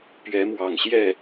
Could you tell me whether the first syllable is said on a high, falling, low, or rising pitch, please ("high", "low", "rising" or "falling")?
rising